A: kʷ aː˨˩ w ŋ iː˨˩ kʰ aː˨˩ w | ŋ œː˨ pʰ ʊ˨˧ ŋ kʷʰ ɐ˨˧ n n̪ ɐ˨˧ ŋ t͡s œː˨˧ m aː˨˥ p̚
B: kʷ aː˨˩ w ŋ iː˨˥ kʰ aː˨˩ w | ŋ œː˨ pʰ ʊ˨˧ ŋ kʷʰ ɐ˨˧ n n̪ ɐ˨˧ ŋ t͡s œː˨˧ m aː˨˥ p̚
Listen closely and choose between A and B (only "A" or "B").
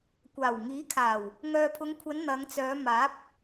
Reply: B